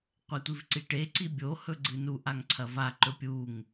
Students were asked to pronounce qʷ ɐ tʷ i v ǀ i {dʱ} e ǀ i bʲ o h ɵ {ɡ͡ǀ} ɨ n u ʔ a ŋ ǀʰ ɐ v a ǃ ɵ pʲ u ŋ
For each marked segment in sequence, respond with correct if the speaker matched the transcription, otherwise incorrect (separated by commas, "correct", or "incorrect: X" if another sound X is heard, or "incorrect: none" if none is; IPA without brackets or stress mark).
incorrect: ʈ, correct